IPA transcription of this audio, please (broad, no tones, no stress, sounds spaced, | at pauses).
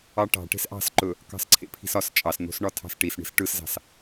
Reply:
ɑ ʈ ɑ̤ ʈ e̤ s ʔ ɑ̤ s ǃ ɵ | k ɑ̤ s ǀʰ ḛ pʰ i̤ s ɒ s t͡ʃʼ ɑ s n̪ o̤ s ɳ ɒ tʰ ɑ̤ s ʈ i s ɳ i̤ s ʈ ɯ s z ɑ̤ s